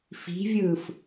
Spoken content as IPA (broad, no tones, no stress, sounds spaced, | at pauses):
f i̤ vʲ ɯː f